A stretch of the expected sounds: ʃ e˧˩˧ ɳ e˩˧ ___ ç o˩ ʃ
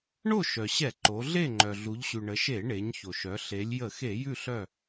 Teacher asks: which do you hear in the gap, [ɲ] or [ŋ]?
ɲ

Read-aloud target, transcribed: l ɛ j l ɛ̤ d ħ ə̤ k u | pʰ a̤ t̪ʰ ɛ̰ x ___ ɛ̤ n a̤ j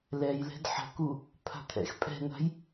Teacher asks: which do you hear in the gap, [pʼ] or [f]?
pʼ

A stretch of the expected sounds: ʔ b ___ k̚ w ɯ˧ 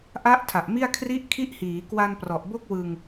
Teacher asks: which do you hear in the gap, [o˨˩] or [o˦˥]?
o˦˥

